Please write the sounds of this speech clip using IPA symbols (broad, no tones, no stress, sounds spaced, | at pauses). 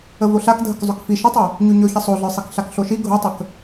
ə v o ɬ a k dʱ ə k zˤ ɵ k f i ʃ ə tˤ ɵ | ɲ ʉ ɲ ɵ ç ə sˤ o ɮ ə˞ sˤ i k ɬ a k ɬ o ʃ i ɡʱ o tˤ ə k